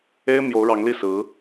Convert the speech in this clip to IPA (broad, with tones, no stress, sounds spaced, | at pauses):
e˥ ɪ̯ m j o˧˥ ʊ̯ ɻ ɑ˧˥ ŋ l i˥˩ s ɹ̩˧˥